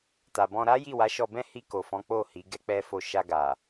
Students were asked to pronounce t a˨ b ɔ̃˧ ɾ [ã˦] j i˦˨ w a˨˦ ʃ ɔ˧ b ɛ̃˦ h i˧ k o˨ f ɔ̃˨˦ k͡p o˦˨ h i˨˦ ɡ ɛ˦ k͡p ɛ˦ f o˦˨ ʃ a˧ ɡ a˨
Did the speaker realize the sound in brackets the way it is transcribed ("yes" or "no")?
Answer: no